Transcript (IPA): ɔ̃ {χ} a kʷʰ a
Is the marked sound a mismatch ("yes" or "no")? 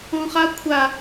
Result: no